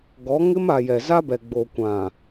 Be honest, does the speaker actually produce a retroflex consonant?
no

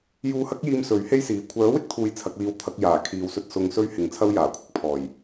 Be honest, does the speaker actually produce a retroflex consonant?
no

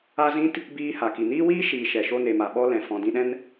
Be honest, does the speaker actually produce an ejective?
no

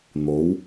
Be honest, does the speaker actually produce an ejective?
no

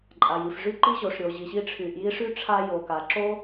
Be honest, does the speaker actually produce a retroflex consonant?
yes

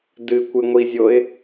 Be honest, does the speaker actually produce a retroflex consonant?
no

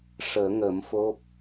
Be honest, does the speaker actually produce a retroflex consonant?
yes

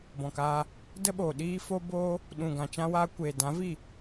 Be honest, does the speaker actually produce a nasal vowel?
yes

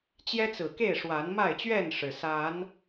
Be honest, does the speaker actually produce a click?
no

